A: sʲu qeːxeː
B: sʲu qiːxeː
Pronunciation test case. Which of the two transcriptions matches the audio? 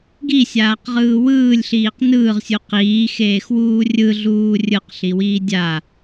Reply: B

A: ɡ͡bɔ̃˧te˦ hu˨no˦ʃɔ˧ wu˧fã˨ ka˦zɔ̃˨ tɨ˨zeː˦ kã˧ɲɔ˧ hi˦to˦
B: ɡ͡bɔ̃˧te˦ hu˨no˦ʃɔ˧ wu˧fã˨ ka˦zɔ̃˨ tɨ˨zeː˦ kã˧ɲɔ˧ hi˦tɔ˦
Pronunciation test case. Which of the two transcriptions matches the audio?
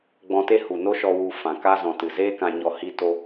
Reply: A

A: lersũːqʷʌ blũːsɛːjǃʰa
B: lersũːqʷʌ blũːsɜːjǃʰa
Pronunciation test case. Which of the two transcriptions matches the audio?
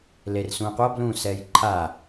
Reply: A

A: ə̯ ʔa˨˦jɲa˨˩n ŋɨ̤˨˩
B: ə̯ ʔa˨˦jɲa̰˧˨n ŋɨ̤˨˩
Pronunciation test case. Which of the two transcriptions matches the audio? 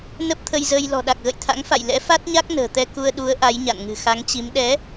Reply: B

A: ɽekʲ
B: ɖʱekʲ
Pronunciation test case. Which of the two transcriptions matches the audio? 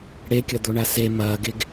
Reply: A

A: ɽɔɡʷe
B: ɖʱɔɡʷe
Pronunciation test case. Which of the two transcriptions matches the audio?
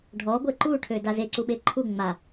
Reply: B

